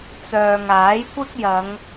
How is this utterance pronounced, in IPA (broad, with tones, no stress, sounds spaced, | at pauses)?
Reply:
t͡s œː˨ ŋ aː˨˥ j kʷ ɪ˥ k̚ j ɐ˨˧ ŋ